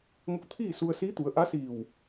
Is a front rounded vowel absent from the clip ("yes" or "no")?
yes